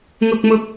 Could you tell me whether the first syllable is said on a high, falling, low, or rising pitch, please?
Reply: low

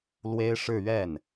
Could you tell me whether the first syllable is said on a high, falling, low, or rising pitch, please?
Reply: high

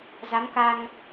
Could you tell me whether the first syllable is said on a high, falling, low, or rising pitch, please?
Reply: rising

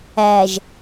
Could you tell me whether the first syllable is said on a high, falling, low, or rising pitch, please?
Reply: low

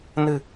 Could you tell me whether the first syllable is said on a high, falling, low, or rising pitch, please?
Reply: low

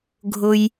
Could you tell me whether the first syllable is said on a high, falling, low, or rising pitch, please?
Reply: low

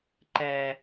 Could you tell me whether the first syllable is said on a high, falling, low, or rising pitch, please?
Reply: high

